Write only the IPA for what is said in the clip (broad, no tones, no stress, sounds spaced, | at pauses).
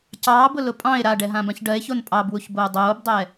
c ɑː b ʊ l ʊ pʼ ɑ̃ e̯ ɾ a ɖ ɛ ɦ ã b ã ç ɖ ɜ e̯ ç o n pʼ ɑ b w u ç b oː dˤ oː b dˤ ɛ